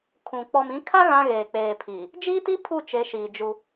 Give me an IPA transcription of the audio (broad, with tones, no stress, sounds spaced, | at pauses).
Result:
kʰ ũ˨ k͡p ɔ˨ m ĩ˨˦ kʰ a˦ ɣ ã˦ ɣ eː˨ k͡p eː˨ pʰ iː˨ | d͡ʒ iː˦ t i˦ pʰ u˦˨ t͡ʃ e˨˦ ʃ iː˨ d͡ʒ u˦